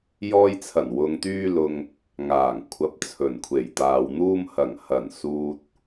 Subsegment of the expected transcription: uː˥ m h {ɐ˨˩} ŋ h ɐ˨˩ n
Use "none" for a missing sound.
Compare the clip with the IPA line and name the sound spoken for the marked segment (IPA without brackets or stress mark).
ɐ˨˩